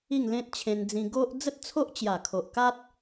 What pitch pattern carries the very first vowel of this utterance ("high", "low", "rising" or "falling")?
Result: falling